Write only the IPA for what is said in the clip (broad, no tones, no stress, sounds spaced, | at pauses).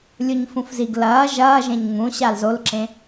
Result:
lʲ u ɲ f ũ f z i ɡ l ɐː ʒ ɐː ʒ ẽ ɲ ŋ ũ ɕ a l z o l ǁ ẽ